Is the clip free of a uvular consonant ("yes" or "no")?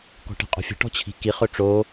no